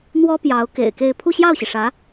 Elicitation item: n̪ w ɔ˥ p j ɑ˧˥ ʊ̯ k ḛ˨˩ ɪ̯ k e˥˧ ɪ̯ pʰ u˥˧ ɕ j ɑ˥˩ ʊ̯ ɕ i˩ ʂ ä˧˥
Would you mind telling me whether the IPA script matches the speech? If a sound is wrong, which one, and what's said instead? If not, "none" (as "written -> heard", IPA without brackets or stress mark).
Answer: none